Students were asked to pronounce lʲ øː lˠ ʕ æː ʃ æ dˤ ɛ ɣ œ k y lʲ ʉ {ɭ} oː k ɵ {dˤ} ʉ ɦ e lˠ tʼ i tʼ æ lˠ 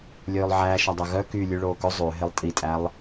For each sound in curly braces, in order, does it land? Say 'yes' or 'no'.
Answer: yes, no

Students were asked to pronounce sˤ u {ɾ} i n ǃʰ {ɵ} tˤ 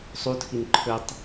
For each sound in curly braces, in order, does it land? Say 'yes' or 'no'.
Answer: no, yes

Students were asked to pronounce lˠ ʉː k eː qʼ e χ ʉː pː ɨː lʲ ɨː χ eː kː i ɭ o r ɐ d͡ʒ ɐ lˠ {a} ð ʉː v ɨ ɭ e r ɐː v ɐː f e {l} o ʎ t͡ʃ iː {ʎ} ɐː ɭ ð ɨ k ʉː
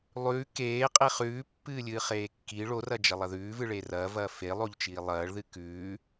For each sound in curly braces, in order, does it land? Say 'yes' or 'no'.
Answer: no, no, no

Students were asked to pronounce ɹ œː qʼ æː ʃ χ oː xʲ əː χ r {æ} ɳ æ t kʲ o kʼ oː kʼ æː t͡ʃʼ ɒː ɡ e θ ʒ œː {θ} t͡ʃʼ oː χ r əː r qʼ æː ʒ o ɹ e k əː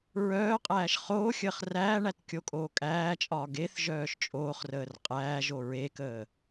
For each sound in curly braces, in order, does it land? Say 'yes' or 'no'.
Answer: no, no

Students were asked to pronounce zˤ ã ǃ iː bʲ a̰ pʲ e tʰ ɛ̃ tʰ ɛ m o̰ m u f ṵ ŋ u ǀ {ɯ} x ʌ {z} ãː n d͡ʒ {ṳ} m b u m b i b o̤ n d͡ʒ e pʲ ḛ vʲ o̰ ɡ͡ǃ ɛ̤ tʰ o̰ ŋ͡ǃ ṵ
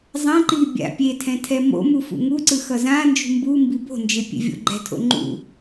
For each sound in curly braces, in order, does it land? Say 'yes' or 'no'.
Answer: yes, yes, yes

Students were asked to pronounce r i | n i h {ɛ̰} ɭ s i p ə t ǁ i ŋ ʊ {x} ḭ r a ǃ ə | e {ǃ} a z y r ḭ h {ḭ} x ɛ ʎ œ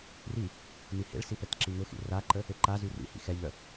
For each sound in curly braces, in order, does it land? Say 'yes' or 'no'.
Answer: no, yes, yes, yes

